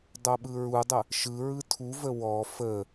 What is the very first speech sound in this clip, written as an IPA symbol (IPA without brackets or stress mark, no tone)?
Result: dˤ